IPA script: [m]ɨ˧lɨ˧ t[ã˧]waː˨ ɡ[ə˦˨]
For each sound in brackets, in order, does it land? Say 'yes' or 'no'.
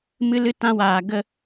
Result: yes, yes, yes

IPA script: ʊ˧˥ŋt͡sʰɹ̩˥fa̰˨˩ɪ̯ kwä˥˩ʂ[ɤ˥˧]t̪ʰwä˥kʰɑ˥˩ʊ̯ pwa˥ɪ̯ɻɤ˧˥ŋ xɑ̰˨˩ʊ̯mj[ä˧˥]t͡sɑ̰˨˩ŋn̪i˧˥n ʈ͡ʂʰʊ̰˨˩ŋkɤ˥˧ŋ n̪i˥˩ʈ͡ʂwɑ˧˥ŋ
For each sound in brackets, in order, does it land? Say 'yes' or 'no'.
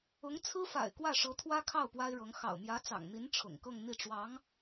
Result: no, yes

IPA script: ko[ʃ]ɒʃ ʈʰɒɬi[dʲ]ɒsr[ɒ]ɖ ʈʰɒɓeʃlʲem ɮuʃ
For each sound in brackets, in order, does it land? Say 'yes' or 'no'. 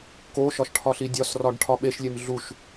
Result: yes, yes, yes

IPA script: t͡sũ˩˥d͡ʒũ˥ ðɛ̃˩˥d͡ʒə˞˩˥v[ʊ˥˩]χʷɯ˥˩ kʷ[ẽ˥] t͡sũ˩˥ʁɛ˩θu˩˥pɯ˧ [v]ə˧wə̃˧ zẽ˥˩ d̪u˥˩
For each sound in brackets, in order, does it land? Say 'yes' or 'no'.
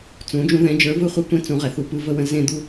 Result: no, yes, yes

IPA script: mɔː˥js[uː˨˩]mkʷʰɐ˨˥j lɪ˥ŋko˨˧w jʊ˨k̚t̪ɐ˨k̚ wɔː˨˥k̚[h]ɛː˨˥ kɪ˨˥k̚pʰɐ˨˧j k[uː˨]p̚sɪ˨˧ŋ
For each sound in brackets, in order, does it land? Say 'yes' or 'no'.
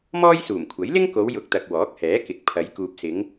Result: yes, yes, yes

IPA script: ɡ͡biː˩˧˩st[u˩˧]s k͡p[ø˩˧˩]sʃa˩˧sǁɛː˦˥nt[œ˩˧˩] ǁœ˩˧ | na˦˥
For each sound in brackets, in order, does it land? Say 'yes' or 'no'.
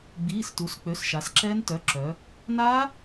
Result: yes, yes, yes

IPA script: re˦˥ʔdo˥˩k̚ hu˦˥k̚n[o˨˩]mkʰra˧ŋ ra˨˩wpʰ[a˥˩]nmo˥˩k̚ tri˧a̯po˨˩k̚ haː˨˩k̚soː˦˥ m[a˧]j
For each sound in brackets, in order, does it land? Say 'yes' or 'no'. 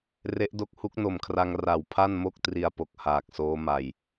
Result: yes, yes, no

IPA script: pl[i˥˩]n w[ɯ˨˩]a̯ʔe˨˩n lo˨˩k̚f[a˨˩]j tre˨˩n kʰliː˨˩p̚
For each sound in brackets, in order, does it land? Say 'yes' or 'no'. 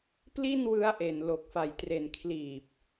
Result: yes, no, yes

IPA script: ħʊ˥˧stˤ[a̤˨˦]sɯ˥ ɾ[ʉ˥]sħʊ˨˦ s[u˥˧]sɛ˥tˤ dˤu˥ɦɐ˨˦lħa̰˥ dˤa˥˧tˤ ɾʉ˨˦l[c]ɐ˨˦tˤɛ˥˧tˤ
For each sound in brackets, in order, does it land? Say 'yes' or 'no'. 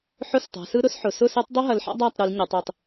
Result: yes, no, no, no

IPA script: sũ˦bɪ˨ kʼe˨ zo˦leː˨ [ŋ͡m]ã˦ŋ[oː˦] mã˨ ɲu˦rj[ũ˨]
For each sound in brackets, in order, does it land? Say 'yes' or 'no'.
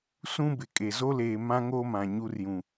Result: no, yes, yes

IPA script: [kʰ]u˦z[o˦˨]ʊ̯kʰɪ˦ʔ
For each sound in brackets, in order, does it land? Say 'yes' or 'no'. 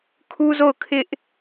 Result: yes, yes

